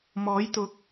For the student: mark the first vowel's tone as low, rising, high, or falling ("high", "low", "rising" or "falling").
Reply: rising